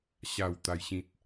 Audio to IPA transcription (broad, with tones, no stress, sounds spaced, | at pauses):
ɕ a˥˧ w t̪ a˦ j ɕ ĩ˦ t̚